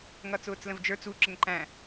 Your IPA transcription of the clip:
ŋ ʌ t͡s ʊː t͡s l ə̃ v d͡ʒ ə˞ t͡s u ǁ ə ŋ ǃ æ̃

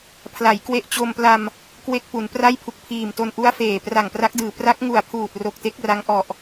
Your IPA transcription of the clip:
pʰ l a˩˦ j k w e˦˥ ʔ t͡ɕ o˧ m p l a˧ m | k w e˥˩ k̚ p u˩˦ n p r a˥˩ j pʰ u˨˩ k̚ pʰ iː˨˩ m t o˧ n ʔ u˦˥ a̯ f eː˨˩ p r a˨˩ ŋ p r a˦˥ k̚ d ɯː˨˩ p r a˦˥ k̚ ŋ u˨˩ a̯ pʰ uː˨˩ t̚ r o˨˩ k̚ t e˦˥ k̚ r a˦˥ ŋ ʔ ɔ˨˩ ʔ

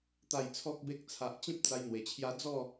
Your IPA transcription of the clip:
t̪ a˨˩ j t͡sʰ ɔ˨ k̚ b e˨ k̚ t͡sʰ a˨ ʔ t͡ɕ ĩ˦ p̚ t͡s a˧ j n̪ w e˨˩ t͡ɕʰ j a˧ d͡z ɔ˥˧

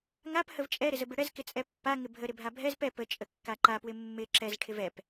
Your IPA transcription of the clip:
ŋ a p h ə v t͡ʃʼ ɛ ɾ ɪ z ə b ɪ ɽ ɛ z k ɪ t͡sʼ ɛ pː a ŋ ɪ bʱ ə ɾ ɪ bʱ a bʱ ɛ z p ɛ p ə t͡ʃʼ ə kː a ǃ a p w ɪ mː ɪ ǁ ɛ z ʈʰ ɪ v ɛ p

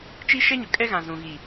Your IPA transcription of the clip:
t͡ʃ i˦ ʃ ɛ˦ ɲ ʊ˨ kʼ ɛ˦ ɣ ã˨ z ũ˨ ɣ i˨

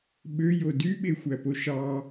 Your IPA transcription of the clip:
ɓ ø j o d y ɓ e xʷ æ p o ʃ ɑ

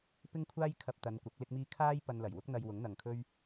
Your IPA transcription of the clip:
p ɪ˥ ŋ kʷʰ aː˥ j kʰ ɐ˧ p̚ t̪ ɐ˨˧ n kʷ ɐ˨˥ k̚ l ɪ˥ k̚ m iː˥ kʰ aː˥ j p ɐ˧ n l ɐ˨˩ j w ʊ˥ k̚ n̪ ɐ˧ j w ʊ˨˥ ŋ n̪ ɐ˨ ŋ kʰ ɵ˥ ɥ

